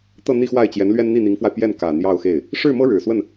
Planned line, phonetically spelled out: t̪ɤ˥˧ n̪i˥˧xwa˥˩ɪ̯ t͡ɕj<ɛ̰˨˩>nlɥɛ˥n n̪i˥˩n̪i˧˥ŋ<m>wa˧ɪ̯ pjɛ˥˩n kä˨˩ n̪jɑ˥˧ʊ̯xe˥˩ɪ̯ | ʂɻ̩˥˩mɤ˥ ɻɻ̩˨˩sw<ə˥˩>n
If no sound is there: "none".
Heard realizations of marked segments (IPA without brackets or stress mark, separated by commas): ɛ˧˥, f, ə˥˩